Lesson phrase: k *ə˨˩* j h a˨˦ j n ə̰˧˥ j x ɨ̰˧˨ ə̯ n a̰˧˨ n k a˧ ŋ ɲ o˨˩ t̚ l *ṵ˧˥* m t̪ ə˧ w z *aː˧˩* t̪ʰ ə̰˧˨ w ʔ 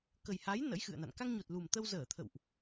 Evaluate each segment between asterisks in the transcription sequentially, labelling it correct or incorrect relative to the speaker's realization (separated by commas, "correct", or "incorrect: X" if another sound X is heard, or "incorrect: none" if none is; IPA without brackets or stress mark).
correct, incorrect: u˨˩, incorrect: əː˧˩